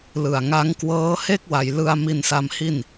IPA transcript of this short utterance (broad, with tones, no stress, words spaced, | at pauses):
lɯ˨˩a̯ŋa˦˥ŋkwɤː˦˥ he˥˩k̚wa˩˦j lɯ˧a̯ mi˧nsa˧mhi˥˩n